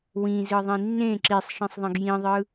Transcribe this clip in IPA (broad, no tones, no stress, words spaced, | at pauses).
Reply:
wĩzɯðˤĩ nːẽ ǁisˤʃĩsˤðˤẽɡ jĩðˤɯ